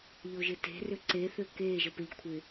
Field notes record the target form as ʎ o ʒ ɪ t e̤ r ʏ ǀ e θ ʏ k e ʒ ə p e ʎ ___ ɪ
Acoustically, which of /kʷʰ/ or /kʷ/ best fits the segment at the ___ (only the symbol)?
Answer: kʷʰ